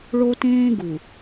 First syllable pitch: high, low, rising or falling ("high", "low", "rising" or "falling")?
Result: high